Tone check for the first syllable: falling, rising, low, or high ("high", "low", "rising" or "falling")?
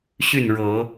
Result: falling